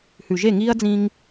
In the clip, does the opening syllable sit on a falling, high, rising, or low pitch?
low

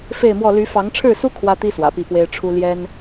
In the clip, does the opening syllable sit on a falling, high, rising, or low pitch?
falling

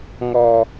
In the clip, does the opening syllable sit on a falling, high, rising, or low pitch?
low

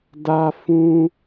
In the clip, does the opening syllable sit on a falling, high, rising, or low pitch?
high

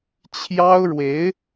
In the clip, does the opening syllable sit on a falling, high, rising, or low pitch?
high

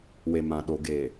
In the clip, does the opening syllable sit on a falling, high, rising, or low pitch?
low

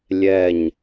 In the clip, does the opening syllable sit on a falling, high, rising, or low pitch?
falling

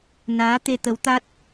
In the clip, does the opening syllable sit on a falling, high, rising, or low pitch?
rising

